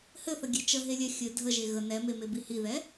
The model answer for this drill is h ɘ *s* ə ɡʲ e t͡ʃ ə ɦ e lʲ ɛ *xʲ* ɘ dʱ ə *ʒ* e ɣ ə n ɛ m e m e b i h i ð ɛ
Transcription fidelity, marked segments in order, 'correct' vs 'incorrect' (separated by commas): incorrect, correct, correct